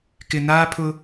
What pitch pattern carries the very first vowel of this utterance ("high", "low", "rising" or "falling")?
low